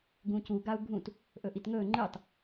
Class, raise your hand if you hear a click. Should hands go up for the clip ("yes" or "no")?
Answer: yes